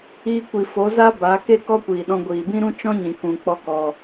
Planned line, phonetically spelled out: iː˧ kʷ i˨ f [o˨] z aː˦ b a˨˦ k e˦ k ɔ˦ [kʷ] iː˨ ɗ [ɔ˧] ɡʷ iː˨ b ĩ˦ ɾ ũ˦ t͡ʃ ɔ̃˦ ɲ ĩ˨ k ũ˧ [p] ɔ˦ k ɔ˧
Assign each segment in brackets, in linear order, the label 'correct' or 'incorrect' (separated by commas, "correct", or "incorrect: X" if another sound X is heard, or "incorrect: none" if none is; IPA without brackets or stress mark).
incorrect: o˨˦, correct, incorrect: ɔ̃˧, incorrect: k͡p